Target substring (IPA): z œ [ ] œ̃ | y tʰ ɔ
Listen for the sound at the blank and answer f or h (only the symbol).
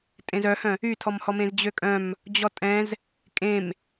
h